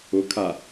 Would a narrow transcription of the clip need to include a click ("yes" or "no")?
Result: no